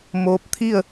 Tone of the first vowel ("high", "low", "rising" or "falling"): rising